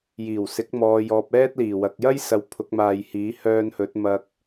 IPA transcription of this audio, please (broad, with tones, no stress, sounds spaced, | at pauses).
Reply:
j iː˨˩ w s ɪ˨˥ k̚ m ɔː˨ j ɔː˨ p̚ ɛː˥ t̚ l iː˨˩ w ɐ˨ k̚ j ɐ˥ j s ɐ˨ w pʰ ʊ˨˥ k̚ m aː˨ j h iː˨˥ h œː˧ n h ɵ˨˥ t̚ m ɐ˨ k̚